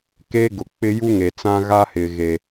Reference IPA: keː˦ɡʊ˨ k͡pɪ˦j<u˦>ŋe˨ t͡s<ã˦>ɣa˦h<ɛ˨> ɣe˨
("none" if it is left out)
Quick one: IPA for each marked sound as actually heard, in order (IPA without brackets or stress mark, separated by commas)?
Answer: u˦, ã˦, ɪ˨